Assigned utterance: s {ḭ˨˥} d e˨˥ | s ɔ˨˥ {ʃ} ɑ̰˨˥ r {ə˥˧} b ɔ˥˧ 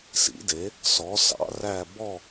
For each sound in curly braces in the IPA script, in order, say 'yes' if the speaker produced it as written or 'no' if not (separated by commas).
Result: yes, no, no